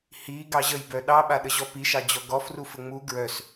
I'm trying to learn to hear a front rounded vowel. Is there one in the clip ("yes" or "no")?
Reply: yes